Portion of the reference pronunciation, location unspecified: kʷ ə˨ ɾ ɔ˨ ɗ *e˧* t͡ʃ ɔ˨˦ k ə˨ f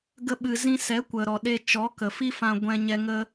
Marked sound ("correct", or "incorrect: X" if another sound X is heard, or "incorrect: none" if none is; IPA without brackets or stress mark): correct